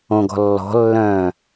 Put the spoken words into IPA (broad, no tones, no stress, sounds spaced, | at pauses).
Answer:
õ ɡ ɔ̤ lː ɔ̤ lː œ̃ː